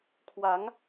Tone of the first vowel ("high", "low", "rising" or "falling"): rising